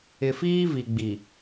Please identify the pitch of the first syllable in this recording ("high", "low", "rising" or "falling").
low